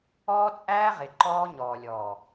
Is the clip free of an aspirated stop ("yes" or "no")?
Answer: yes